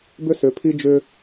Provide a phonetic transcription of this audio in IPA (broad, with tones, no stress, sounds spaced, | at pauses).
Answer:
b ʏ˦ s ʏ˨˦ pʰ i˦ d͡ʒ ʏ˦